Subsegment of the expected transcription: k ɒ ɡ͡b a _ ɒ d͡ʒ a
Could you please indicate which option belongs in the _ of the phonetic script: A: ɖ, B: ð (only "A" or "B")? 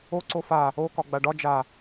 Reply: A